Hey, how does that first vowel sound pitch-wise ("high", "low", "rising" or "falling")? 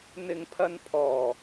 low